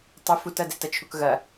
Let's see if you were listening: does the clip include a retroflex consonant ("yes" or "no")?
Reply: no